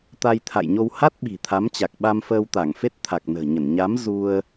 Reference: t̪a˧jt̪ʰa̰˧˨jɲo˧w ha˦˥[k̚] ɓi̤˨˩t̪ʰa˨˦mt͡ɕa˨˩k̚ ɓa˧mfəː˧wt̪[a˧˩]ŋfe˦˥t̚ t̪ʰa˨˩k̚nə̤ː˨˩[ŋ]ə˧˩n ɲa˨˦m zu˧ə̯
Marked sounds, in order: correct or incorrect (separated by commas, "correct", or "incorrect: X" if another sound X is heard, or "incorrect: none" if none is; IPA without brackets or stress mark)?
incorrect: t̚, correct, incorrect: ɲ